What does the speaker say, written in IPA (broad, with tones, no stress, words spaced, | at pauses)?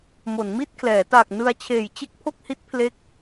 mo˩˦nmi˥˩t̚kʰlɛː˩˦ ta˨˩k̚ nɯ˧a̯t͡ɕʰeː˨˩jt͡ɕe˥˩k̚ pʰo˥˩k̚hi˦˥t̚pʰle˦˥k̚